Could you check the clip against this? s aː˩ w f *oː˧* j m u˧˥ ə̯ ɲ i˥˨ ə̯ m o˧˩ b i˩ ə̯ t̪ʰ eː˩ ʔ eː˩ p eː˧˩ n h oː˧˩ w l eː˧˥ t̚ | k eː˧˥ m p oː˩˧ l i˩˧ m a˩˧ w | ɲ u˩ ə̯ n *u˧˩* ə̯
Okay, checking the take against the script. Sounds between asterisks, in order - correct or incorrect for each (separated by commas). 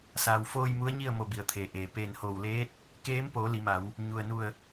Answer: correct, correct